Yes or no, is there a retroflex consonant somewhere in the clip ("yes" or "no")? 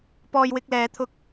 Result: no